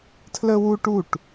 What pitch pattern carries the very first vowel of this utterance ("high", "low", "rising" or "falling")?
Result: high